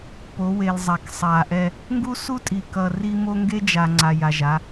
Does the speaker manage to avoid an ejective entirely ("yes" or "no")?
no